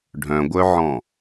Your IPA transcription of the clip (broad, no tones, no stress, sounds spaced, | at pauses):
ɖʱ œ̃ ɡʷ œ ʕ ɔ̃